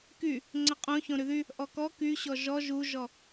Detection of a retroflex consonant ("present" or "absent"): absent